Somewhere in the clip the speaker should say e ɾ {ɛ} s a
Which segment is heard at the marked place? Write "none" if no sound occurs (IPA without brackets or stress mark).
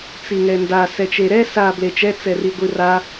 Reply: ɛ